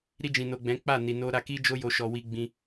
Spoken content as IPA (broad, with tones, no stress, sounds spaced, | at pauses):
ɾ i˧ d͡ʒ ĩ˨ n o˨ ɡ͡b ɛ̃˨˦ k͡p a˦˨ n i˨ n o˧ ɾ a˧ k i˦ d͡ʒ o˦ j o˧ ʃ ɔ˧ w i˧ ɡ͡b ĩ˧